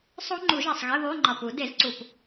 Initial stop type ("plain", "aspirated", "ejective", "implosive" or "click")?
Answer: click